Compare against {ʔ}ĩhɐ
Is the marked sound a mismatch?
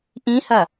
no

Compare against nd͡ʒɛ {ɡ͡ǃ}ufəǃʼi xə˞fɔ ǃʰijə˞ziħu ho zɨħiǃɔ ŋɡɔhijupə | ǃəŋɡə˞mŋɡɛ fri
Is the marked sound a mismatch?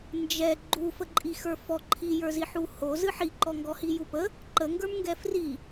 no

